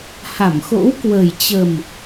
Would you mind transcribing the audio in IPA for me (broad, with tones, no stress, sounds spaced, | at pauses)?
h a˧˩ m x o̰˧˥ w k w ə˨˩ j t͡ɕ ə˨˩ m